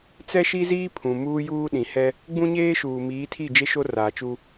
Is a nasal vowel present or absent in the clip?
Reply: present